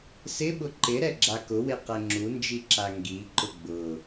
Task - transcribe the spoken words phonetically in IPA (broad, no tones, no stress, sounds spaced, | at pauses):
s ɪ ɓ ʊ ǃ ɪ ɾ ɛ ɡ͡ǁ a k ʊ w e q ɛ ŋ͡ǁ u n d͡ʒ i ǁ a ŋ ɡ i ǃ ʊ ɡ͡b ʊ